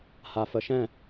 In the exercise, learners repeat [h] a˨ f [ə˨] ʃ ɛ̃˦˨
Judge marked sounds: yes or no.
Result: yes, yes

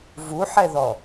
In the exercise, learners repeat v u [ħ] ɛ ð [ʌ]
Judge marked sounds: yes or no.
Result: yes, no

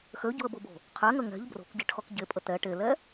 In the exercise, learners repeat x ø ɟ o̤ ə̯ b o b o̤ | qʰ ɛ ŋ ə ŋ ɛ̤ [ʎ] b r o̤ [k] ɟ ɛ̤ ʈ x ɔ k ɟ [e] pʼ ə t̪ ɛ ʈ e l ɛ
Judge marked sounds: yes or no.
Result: yes, yes, yes

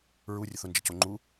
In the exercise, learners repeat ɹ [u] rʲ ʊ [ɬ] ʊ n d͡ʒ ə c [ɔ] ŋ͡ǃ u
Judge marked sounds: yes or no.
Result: yes, no, no

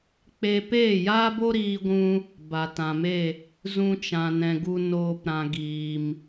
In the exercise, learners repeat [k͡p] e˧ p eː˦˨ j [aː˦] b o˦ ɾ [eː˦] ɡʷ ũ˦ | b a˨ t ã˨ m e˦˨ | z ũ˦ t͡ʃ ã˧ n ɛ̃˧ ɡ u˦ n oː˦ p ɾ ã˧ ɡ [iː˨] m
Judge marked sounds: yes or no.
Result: yes, yes, no, yes

